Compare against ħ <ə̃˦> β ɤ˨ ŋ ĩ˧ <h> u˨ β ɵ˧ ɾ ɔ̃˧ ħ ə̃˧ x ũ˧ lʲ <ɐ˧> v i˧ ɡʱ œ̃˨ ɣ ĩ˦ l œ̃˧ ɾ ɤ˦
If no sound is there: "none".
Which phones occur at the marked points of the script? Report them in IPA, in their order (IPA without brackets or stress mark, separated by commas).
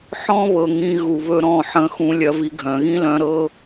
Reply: ɔ̃˦, ɣ, ɐ˧